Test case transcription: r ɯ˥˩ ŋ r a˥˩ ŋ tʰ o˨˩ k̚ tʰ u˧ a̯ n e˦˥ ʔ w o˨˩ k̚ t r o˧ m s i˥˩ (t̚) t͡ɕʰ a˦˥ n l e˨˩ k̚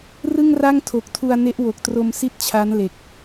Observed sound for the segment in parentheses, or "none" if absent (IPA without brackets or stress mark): t̚